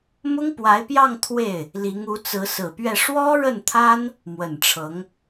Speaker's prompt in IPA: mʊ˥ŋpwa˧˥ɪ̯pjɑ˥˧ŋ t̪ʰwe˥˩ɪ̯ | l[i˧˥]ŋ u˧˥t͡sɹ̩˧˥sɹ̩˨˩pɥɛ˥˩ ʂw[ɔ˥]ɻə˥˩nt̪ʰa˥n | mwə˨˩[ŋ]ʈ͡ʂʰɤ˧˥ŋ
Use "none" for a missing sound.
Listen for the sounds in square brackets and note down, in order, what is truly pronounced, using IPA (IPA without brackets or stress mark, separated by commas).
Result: i˧˥, ɔ˥, n